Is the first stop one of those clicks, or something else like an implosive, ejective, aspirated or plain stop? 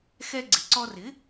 click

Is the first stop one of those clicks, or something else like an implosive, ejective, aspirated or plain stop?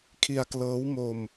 aspirated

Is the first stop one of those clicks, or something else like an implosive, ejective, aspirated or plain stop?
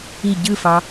plain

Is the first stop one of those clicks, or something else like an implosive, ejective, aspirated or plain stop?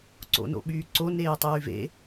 click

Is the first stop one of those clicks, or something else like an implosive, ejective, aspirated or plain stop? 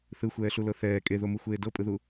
ejective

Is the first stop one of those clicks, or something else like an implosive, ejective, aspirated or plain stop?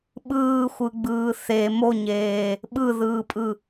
implosive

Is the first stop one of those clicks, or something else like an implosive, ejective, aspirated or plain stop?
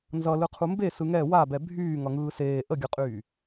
aspirated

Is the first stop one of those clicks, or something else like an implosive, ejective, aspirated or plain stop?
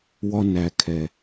aspirated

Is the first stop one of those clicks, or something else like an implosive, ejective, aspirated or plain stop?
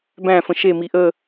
plain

